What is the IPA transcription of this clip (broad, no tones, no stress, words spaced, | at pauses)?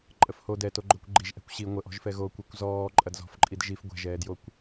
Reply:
ǃʼəfho dɛ toɡ͡ǃokʷɡ͡ǃiʒ ʔɛ̤kʷɕi ŋʷəʔɔ̤ʒfɛ ɣokʷɛkʷ zɔː ǃʼɐdzɔ̤fǃʼid ʒif ɡʷɛ̤ʒɛːdjokʷ